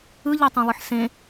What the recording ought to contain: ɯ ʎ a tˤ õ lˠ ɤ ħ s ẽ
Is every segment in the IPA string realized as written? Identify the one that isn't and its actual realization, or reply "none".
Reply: ɤ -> ɯ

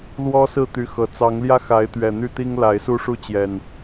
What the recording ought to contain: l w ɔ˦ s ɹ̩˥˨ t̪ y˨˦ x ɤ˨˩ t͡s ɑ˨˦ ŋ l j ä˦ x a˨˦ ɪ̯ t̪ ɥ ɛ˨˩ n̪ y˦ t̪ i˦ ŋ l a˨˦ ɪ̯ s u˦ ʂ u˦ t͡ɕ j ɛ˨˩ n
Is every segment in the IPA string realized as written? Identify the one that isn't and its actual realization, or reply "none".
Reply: none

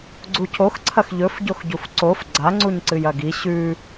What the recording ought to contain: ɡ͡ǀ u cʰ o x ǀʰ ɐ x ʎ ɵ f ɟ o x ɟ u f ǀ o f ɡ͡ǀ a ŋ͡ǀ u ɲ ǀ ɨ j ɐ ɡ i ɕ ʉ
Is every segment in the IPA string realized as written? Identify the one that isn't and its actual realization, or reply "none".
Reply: none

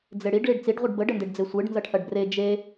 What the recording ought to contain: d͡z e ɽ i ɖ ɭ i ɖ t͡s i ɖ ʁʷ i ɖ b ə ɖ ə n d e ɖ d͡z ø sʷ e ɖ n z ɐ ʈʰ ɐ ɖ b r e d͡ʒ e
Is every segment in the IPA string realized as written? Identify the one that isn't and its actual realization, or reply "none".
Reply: ø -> e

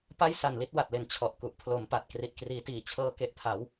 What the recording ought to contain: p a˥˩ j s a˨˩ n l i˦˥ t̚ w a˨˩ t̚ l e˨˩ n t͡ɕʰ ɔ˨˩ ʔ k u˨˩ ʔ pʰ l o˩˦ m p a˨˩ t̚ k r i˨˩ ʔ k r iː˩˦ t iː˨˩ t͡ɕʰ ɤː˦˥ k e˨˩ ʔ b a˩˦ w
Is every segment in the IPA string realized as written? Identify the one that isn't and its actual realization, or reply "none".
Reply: b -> pʰ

